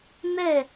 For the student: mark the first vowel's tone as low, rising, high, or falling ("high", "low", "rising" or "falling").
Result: falling